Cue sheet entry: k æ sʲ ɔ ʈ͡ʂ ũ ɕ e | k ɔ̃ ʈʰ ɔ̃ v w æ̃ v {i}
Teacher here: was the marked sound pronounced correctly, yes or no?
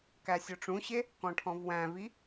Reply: yes